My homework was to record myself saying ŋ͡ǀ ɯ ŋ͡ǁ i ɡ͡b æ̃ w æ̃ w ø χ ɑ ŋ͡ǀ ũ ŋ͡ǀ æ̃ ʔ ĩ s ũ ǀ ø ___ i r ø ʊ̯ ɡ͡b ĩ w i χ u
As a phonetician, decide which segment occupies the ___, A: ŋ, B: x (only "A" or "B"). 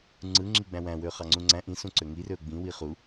A